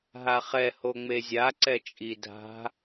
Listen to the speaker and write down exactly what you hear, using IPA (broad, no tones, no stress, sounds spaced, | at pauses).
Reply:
ɦ a χ ɛ h o ŋ͡m e zʲ a ǀ ɛ t͡ʃʼ i dʱ a̤